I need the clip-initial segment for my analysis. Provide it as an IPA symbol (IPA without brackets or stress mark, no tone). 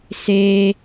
s